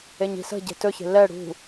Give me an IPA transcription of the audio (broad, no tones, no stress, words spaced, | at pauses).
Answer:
eɲi̤sə̤ɟe̤ tɵçe̤ lɛ ɽṳ